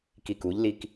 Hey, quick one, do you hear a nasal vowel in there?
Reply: no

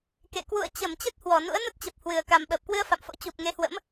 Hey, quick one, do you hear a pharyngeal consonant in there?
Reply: no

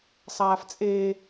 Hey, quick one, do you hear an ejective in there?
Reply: yes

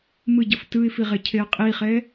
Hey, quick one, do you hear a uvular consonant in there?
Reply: yes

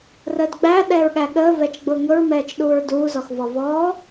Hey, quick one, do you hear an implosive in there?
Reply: yes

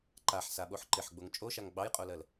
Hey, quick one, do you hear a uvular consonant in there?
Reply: yes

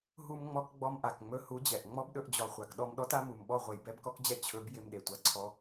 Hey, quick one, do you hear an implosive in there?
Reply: yes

